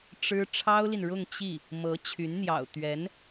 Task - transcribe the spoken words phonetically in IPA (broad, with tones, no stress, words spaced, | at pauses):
ʈ͡ʂɻ̩˥ ʈ͡ʂʰɑ˥ʊ̯li˨nɻʊ˥˧ŋ t͡ɕi˥˩ | mɤ˧˥ t͡ɕʰy˧˥nn̪jɑ̰˨˩ʊ̯ t̪ɥɛ˧˥n